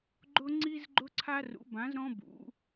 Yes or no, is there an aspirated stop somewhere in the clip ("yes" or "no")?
yes